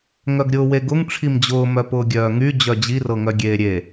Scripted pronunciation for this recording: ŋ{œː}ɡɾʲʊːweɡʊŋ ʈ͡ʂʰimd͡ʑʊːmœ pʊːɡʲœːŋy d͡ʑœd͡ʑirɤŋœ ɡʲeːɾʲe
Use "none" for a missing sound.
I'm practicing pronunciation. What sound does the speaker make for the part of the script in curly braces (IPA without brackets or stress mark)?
œ